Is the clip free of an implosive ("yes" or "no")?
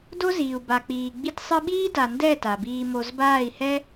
no